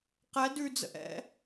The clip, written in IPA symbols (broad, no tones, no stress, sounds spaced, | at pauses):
q ɛ d ʉ d͡z ə̰ ʔ ɛ̰